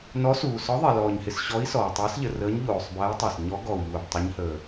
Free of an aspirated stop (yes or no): yes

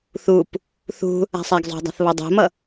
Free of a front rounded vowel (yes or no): yes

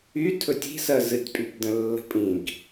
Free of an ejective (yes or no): no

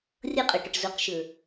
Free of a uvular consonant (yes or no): no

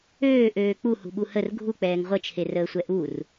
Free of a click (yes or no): yes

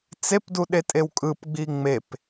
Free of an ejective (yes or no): no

